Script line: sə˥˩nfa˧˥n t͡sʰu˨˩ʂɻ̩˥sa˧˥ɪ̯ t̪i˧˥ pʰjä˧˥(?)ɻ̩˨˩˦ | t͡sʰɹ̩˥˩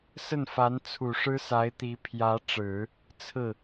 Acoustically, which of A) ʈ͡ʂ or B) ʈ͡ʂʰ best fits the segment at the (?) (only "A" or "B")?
A